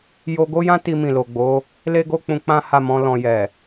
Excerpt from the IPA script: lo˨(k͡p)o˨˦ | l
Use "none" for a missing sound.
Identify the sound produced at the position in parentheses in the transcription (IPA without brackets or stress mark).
ɡ͡b